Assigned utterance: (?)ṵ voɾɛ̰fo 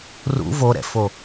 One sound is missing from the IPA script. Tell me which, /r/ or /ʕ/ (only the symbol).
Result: r